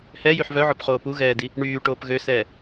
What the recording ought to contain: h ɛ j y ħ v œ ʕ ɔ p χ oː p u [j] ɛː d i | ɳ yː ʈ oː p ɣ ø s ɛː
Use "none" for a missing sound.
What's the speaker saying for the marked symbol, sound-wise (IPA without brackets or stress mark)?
ɣ